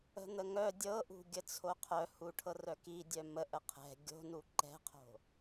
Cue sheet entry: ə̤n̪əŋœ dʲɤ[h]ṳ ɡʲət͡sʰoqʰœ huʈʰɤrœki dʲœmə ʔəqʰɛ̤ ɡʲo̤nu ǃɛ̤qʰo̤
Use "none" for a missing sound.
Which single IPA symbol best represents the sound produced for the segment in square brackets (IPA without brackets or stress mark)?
ʔ